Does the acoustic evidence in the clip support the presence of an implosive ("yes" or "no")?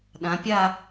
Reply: yes